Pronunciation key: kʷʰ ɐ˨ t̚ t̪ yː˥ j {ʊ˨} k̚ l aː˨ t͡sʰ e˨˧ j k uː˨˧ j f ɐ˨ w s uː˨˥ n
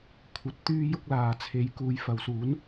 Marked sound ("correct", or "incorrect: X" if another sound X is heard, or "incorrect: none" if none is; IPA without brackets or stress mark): incorrect: ʊ˥